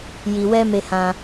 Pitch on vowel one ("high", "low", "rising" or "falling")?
low